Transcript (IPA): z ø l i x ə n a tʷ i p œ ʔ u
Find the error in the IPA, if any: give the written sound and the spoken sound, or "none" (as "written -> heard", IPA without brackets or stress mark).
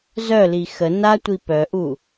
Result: ø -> œ